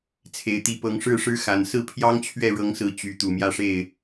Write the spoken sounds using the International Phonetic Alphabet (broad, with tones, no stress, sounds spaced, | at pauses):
t͡sʰ e˨˩ ɪ̯ t̪ i˨˦ p ɤ˨˦ ŋ ʂ ɻ̩˥˨ ʂ ɻ̩˦ x a˨˩ n s ɹ̩˥˨ pʰ j ɑ˦ ŋ t͡ɕʰ ɥ ɛ˥˨ ɻ ɤ˨˦ ŋ s ɹ̩˨˦ t͡ɕ y˨˦ t̪ u˨˩ m j ä˥˨ ʂ e˥˨ ɪ̯